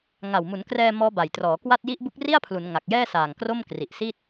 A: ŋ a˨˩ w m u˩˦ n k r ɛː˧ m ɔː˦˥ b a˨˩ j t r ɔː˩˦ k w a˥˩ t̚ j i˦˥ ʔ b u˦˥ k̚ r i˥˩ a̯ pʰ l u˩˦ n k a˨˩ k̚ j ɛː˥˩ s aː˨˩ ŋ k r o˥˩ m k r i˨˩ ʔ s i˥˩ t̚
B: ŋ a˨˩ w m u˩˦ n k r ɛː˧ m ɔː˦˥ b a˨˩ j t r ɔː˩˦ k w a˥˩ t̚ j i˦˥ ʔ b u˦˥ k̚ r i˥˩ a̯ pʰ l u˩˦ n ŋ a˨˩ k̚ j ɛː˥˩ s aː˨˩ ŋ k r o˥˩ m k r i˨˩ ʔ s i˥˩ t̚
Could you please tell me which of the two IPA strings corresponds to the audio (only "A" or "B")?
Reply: B